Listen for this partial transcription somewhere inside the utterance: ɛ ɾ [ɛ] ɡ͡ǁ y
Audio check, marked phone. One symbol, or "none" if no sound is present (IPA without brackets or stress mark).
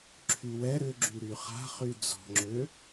ʏ